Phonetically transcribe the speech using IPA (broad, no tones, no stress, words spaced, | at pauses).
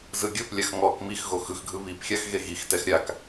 zɯɡʲɤplʲax ŋɔk mixɣo xɯxɡʱɯ βipxʲax ɣeɣixtɛx ɾʲak